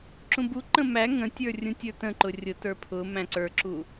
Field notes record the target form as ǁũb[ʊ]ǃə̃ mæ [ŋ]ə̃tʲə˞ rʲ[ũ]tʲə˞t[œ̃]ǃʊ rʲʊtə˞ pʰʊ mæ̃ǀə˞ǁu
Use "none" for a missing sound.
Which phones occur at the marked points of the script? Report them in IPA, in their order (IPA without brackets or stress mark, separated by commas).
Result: u, ŋ, ũ, ə̃